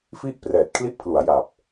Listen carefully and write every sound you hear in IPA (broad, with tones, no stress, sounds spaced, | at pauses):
f i˥˩ ʔ p r ɛː˨˩ t̚ kʰ l i˦˥ ʔ pʰ l u˩˦ a̯ j a˨˩ p̚